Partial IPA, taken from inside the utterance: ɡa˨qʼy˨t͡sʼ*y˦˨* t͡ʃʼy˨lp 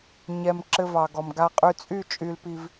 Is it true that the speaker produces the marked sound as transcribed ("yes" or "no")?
yes